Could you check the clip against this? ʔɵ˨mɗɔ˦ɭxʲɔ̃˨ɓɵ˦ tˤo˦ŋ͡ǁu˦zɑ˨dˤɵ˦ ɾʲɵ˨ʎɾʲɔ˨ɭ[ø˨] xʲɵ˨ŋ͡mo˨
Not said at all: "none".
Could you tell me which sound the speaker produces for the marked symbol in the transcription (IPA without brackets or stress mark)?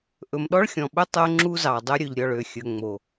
ø˨